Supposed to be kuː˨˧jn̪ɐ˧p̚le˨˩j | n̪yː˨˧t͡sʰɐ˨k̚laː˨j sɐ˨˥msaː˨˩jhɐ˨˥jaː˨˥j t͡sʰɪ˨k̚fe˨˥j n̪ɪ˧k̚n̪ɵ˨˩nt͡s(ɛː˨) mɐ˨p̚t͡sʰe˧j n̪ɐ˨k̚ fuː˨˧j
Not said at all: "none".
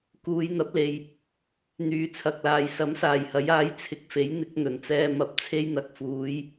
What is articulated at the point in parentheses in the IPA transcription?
ɛː˧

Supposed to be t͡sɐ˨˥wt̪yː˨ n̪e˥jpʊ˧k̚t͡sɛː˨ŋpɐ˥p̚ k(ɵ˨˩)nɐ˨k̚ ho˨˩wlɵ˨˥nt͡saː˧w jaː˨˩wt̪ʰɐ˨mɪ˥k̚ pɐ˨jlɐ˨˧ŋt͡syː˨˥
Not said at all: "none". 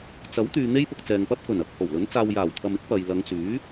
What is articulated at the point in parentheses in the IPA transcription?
ɵ˨˩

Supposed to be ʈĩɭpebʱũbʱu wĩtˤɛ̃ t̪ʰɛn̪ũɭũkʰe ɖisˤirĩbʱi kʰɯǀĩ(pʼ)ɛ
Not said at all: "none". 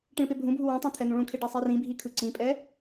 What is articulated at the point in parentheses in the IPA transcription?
pʼ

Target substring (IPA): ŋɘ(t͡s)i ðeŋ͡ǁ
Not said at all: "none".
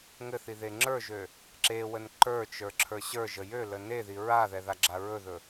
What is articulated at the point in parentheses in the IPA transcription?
θ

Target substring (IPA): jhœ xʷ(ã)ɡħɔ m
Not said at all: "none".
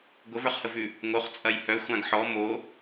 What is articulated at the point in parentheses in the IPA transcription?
ã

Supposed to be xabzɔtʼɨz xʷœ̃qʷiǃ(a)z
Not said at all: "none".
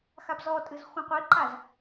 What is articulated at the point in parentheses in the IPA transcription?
a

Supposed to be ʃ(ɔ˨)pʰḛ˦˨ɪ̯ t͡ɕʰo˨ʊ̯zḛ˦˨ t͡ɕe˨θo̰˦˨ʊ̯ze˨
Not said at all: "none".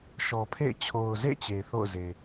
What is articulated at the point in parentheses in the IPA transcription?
ɔ˨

